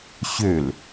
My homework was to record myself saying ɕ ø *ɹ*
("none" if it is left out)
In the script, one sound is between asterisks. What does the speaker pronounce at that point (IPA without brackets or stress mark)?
l